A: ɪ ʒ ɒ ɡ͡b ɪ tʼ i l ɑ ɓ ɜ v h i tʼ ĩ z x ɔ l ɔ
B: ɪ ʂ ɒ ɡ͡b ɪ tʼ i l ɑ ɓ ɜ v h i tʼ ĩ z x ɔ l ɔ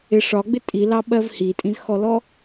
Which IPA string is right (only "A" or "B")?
B